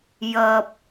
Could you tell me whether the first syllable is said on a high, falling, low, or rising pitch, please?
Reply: low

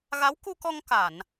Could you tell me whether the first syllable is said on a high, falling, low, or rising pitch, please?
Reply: rising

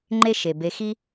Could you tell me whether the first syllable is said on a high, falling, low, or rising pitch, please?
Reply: high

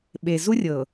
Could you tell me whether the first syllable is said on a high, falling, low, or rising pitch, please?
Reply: low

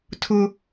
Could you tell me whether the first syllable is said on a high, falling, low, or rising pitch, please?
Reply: high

